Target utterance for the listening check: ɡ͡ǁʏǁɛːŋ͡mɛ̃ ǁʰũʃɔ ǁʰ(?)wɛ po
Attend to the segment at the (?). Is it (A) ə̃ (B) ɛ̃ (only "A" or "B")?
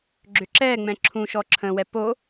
A